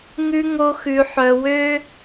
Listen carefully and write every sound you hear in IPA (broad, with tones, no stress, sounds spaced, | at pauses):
ŋ ʉ˦ ŋ o˧ x ʉ˨ ħ œ˨ w ø˦